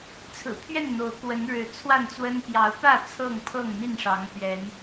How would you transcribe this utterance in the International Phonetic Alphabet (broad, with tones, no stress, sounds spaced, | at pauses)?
t͡sʰ ɹ̩˨˩ pʰ ɥ ɛ˥˨ n n̪ o˨˦ ʊ̯ k w ə˨˦ n ɻ ɻ̩˨˦ t͡sʰ w a˥˨ n t͡s w ə˦ n p j ɑ˨˦ ʊ̯ p ä˥˨ t͡sʰ ɤ˥˨ ŋ pʰ ɤ˥˨ ŋ n̪ i˥˨ n ʂ ɑ˨˦ ŋ p ɥ ɛ˨˦ n